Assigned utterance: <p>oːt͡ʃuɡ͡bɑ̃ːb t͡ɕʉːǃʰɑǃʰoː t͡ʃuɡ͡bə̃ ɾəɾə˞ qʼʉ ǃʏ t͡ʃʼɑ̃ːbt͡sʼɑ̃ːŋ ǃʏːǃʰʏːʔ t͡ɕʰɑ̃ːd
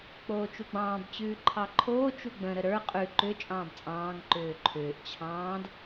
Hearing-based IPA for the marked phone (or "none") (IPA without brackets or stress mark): k͡p